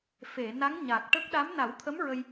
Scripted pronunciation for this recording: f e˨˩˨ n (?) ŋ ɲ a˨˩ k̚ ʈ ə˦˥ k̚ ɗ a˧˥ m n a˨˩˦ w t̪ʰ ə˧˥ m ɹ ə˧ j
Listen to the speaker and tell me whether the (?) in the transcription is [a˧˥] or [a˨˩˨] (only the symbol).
a˧˥